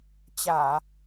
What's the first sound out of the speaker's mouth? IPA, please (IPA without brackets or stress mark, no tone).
t͡ɕ